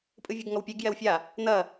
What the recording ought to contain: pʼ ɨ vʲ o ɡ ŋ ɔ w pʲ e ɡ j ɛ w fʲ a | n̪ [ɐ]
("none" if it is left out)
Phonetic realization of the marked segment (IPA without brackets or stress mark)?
ɐ